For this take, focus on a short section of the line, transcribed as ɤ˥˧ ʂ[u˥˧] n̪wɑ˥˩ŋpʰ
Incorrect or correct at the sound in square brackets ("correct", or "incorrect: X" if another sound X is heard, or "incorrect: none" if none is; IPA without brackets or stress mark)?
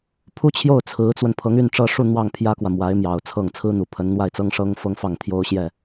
correct